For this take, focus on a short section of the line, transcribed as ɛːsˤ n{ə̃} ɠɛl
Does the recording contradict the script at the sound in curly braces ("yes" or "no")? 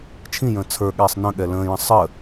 no